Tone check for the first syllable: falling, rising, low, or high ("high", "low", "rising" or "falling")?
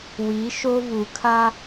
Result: rising